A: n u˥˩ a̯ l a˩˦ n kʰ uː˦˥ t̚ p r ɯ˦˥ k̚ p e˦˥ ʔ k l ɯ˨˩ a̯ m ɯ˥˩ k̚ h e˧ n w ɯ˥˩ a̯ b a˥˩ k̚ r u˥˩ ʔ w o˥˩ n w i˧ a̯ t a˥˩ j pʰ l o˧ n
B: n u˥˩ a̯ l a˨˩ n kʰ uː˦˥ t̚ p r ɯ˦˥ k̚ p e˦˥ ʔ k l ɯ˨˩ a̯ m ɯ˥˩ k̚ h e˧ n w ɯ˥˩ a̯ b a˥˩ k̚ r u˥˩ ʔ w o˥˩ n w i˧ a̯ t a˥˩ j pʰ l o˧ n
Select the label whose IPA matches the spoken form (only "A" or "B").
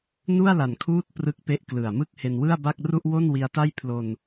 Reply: B